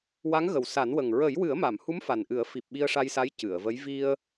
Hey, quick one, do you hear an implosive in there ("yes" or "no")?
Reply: yes